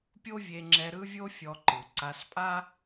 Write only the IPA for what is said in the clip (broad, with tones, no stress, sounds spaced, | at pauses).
pʲ o˥ vʲ e˧ ŋ͡ǁ ɛ˧ ɾ ɯ˥ vʲ o˥ fʲ ɔ˧ ǃ ɯ˩ ǀ a˧ s pʼ a˥